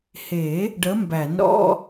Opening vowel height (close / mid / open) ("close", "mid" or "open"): mid